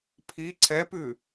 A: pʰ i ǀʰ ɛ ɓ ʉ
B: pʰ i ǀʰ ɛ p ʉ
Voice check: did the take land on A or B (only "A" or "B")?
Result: B